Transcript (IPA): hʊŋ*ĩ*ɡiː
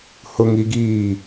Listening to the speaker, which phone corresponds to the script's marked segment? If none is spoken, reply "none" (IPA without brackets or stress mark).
i